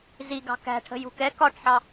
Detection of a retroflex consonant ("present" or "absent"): present